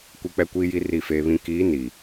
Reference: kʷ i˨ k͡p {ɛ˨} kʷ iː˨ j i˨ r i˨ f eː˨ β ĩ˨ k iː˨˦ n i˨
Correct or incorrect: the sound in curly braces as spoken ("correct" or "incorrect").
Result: correct